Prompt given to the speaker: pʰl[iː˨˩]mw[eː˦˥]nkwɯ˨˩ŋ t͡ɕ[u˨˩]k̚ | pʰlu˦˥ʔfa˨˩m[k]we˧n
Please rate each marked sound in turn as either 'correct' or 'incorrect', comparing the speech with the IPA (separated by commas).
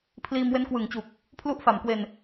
incorrect, incorrect, correct, correct